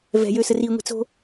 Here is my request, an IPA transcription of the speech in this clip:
v ɛ̤ j øː s ə r i ŋʷ i̤ t͡s o̤

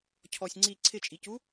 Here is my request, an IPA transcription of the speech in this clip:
cʰ ɔ sʲ ŋ͡ǀ i ǀʰ ɪ t͡ʃʼ i c u

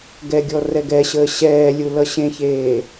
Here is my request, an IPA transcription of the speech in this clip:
ɡ ɛ ɡʲ ɔ r ɛ ɡ ɛ ɕ əː ɕ ɛː lʲ u l ʌ ɕ ẽ ç eː

